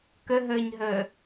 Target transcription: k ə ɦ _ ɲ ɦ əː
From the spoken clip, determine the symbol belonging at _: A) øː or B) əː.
B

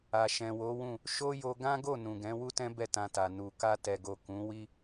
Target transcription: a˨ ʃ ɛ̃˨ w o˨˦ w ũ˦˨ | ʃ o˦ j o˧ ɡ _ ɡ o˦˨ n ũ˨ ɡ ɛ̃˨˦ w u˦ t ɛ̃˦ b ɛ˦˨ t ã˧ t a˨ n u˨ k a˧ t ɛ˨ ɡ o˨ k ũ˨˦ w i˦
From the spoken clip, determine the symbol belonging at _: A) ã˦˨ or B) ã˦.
B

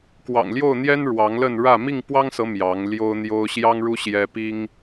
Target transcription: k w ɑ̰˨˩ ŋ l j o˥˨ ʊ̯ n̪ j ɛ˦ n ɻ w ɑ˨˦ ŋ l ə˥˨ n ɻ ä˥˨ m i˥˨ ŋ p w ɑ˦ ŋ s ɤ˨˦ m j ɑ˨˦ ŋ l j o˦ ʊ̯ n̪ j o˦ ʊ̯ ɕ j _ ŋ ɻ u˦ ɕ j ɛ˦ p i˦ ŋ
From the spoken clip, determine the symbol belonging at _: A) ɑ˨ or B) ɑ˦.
B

